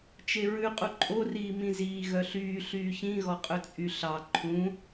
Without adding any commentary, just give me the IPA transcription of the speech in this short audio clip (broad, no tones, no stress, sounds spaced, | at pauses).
t͡ʃ e ɹ ʉ qʼ u ǃʼ o r iː m ĩ z iː ɣ œ ɬ yː ɬ yː ç ĩ ɣ ɔ qʼ ɵ t͡sʼ y ɬ ɑ ǃʰ ũ